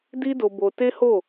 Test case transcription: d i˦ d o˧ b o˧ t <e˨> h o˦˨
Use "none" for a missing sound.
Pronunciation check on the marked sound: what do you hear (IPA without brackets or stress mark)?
e˦